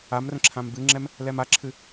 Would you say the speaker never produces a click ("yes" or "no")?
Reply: no